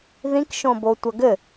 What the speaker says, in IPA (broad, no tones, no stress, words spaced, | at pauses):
ðĩkʃõbo tʷɐɡɘ